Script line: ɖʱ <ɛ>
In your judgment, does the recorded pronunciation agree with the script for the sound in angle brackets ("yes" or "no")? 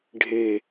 no